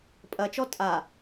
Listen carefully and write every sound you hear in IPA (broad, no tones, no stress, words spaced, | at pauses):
pʼɐt͡ʃɔ tʼa